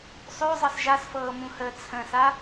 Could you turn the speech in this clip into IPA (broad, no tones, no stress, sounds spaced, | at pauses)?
sˤ ø zˤ ɤ s ʒ a s f ɤː m ũ h əː t͡sʰ ə̃ s a